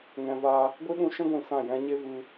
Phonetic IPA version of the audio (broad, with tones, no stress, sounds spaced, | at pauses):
ŋ ɛ̃˧ v a˦ | ɡʷ i˦ ɗ ũ˧ ʃ ɛ̃˦ ɡʷ ĩ˨ s ã˦˨ j ɛ̃˦ ɲ e˦ v ɨ˧